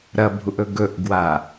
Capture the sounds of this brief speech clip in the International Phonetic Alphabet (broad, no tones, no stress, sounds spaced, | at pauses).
ɾ ɐ bʱ u ʔ ɵ ɡ ɵ ʔ ɡ w a